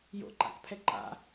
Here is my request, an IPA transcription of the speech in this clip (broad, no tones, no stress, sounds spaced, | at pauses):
j o̰ ǃ a̰ k pʰ ɛ ǃ a̰